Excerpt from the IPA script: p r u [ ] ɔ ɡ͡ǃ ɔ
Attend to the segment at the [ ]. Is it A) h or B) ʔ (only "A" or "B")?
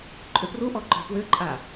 B